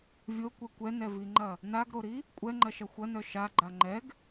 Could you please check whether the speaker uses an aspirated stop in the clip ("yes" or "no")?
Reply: no